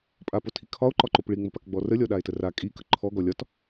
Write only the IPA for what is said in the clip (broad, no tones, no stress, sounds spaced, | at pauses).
pʼ a p o tʰ i kʰ ɒ o̯ ǃ ɒ ǃ o p ɭ i ŋ͡m ə p a k ɡ͡b ɔ r ə lʲ ɔ ɗ a e̯ t ə r a kʼ i k ə ǃʰ ɔ ɡ ɔ lʲ ɒ t